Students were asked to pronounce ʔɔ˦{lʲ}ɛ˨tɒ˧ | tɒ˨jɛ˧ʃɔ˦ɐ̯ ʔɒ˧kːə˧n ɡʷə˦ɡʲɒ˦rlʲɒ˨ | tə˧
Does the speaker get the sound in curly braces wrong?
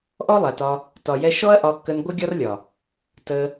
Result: yes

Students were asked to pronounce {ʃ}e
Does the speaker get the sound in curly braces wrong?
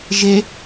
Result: yes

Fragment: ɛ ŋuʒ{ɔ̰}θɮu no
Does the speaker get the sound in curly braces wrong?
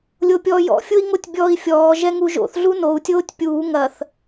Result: yes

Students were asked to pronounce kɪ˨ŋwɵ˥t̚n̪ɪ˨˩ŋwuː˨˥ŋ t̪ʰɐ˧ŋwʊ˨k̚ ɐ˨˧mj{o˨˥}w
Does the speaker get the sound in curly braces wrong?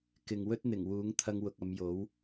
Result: no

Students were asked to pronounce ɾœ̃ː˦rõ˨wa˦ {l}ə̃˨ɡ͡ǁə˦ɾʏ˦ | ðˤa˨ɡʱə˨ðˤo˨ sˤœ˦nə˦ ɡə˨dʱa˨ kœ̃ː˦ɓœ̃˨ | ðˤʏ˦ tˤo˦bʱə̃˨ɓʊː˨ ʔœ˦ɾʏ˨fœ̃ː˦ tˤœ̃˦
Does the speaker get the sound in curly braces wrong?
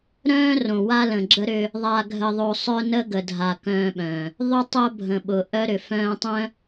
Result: no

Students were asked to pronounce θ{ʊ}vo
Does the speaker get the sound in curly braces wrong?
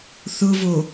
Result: no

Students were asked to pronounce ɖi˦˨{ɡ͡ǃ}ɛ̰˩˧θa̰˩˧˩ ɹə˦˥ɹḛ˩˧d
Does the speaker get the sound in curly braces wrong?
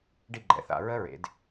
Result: no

